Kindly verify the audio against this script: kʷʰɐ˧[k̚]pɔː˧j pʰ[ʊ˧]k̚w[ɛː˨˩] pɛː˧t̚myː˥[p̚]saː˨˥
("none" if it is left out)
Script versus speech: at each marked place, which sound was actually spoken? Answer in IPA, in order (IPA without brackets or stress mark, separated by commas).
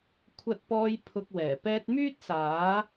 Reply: t̚, ʊ˧, ɛː˨˩, t̚